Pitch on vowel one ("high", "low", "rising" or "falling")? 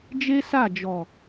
high